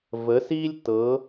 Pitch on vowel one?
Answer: rising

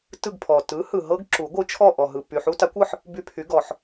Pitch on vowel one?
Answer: falling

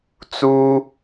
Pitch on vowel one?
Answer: high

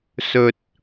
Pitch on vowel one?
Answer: low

